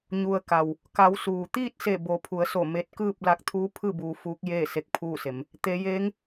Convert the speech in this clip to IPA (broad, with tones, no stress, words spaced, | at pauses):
ɲu˩ə̯ ka˩w | ka˩˧w suː˩t̪iː˥˨t̚se˧˩ bo˩˧pʰu˩˧ə̯so˧˩ me˧t̚kɯː˥˨p̚ la˧k̚t̪ʰuː˧˥pʰɯː˥˨ buː˧fuː˧˥k̚ jeː˥˨ se˧k̚pʰuː˥˨se˩˧m | t̪e˩˧jeː˧˥ŋ